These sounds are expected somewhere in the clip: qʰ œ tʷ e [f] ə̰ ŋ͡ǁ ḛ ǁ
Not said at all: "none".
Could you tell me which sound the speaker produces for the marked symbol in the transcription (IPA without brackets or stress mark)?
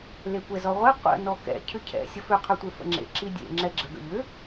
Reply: f